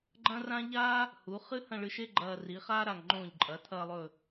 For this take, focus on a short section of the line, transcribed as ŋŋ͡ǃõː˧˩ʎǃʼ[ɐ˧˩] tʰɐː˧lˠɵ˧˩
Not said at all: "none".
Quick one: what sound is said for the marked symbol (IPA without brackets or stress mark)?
ɐ˩˧